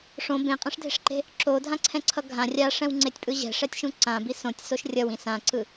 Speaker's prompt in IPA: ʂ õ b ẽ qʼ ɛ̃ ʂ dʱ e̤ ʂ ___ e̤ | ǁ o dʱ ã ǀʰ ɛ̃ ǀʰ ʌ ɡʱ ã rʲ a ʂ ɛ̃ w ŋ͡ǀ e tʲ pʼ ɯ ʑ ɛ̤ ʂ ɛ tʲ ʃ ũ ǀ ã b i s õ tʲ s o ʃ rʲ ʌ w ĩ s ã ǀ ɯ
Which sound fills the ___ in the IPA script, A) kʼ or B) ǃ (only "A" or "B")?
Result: B